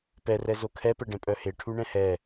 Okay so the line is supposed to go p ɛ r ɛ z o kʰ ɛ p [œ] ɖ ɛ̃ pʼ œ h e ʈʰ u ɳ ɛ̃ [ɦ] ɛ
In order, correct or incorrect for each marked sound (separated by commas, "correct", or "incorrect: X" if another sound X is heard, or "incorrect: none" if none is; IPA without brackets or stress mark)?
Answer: incorrect: ɛ, incorrect: h